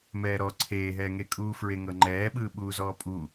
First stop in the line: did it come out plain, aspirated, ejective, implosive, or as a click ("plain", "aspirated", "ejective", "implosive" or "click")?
click